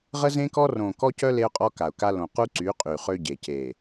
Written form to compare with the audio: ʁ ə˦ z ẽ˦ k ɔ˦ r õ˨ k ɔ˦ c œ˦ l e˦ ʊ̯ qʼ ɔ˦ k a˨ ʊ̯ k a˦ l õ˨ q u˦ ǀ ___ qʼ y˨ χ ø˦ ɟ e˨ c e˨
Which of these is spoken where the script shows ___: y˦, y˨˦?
y˨˦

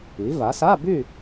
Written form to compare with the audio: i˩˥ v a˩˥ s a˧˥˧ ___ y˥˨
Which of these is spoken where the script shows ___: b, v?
b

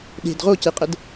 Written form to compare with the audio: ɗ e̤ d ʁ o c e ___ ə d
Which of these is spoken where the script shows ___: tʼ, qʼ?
qʼ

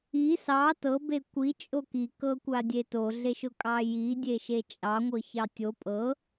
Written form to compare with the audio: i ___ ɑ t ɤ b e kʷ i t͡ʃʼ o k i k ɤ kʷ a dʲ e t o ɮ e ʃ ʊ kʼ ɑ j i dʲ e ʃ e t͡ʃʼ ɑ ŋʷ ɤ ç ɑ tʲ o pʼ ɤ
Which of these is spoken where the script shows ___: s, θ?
s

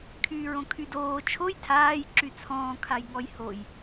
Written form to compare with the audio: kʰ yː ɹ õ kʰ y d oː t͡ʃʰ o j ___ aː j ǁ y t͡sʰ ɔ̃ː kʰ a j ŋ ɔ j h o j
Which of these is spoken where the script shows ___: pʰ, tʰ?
tʰ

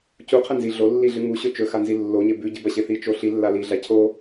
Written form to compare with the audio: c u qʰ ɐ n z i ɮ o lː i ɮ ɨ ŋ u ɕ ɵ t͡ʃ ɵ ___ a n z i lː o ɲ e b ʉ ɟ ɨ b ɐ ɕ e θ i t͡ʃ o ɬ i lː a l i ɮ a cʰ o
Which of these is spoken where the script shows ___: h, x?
x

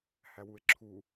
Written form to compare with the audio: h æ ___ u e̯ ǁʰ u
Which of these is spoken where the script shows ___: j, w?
w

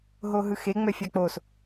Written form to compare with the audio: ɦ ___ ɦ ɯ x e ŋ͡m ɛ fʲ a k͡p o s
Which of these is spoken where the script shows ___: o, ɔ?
o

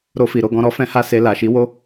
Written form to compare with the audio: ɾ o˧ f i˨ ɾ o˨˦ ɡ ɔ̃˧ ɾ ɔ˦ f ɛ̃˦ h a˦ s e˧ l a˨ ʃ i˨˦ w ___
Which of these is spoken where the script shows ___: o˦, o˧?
o˦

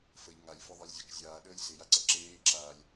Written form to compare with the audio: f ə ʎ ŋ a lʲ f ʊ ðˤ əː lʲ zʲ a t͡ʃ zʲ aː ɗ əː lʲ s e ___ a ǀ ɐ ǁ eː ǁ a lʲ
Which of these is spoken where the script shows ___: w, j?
j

